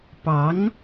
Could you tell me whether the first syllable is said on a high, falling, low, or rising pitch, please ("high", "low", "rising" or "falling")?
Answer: rising